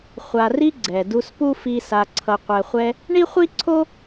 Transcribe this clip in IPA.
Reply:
χʷ a˨ r i˦ ɡ͡ǀ ɛ˨ d u˦ s p u˥ f i˦ s a˨ ǀʰ ʌ˨ qʷ ɛ˨ χʷ ɛ˦ | ɳ i˥ χʷ i˥ ǀʰ o˥

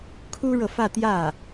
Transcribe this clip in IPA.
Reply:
kʰ u˥ ɻ ɤ˨ f ä˥˧ t̪ j ä˥˩

